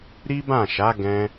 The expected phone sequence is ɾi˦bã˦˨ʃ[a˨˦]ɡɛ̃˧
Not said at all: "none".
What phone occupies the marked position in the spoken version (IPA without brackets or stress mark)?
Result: a˨˦